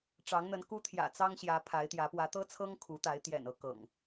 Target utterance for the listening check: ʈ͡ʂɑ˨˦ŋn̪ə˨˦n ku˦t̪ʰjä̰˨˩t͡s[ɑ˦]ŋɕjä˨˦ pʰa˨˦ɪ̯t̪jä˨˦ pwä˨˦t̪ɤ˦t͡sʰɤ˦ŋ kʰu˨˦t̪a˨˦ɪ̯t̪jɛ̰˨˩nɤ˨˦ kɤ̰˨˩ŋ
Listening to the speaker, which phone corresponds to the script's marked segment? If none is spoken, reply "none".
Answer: ɑ˦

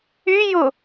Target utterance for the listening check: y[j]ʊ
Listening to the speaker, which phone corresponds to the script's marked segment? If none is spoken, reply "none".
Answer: j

